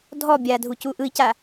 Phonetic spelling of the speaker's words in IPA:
dʱ ɔ bʲ a dʱ u c u ʔ ɯ i̯ c a

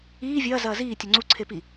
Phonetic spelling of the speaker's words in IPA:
iː vʲ ɐː z ɐː z iː tʲ o ŋ͡ǀ u ǀʰ e p i

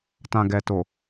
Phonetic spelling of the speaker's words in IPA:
t ã˨ ɡ ɛ˨ t o˨

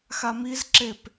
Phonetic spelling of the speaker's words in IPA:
x a m i z ǁ e p

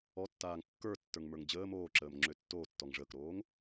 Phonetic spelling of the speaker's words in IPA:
ɔ tː aː ŋ kː ə˞ tː ə˞ ŋ m ə˞ ŋ d͡ʑ əː m oː ǁ əː m ŋ͡ǁ ø tː oː tː ɔ ŋ ʐ əː k ɾ oː ŋ

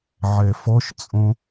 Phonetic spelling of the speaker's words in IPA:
ʕ ɛ f ɔ ʃ t͡sʼ õ

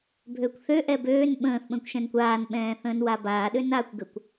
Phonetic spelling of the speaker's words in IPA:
bʱ øː kʷ θ ø ʔ ɛ b øː n ɓ ə̃ː θ ɓ ə̃ː kʷ ʃ ɛ̃ n kʷ aː n ɓ ɛ̃ː θ ə̃ː n w a b aː ɗ ø n aː kʷ ɡ ə kʷ

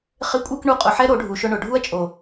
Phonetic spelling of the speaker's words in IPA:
χ ɪ˨˦ kʷʼ e˧ k ɳ u˧ qʼ ʊ˨ ħ ɛ˦ ɾ o˨˦ ɖʱ u˨ ʃ ʊ˧ ɳ ʊ˨ ɖʱ u˦ ɐ̯ t͡ʃʼ o˨

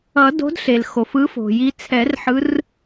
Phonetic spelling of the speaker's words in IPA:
ʌ˨˩˦ d o̤˨˦ d ɬ e˩ l x o˩ f ɯ˨˦ f o̤˩ j i˨˦ t͡sʰ ɛ˨˩˦ r ħ ɯ˨˦ r

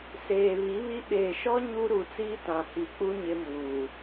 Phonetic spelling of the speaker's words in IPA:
s eː˨ β i˨˦ β i˦ ɓ eː˨ ʃ ɔ˦ ɲ u˦ ɾ u˨ t͡s iː˦ t ã˨ h i˨ k͡p u˦ ɲ ɪ˦ m uː˨

